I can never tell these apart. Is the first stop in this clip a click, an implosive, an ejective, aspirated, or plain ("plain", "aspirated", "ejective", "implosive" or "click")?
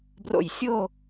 plain